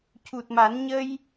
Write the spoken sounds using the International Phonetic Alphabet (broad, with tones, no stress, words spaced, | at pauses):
cu˨˩t̚ma˨˩˦n ɲə˧j